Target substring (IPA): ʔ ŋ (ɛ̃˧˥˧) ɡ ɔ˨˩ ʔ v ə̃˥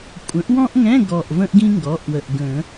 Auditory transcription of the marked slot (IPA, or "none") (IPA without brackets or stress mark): ɛ̃˧˥˧